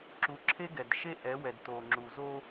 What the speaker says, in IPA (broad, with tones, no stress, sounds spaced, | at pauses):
ǁ u˨ ǁʰ e˦ ɡ ɛ˨ d ʃ e˦ ʔ ɛ˨˦ w ɛ˨ d t o˨ ŋ͡ǁ u˨ z o˦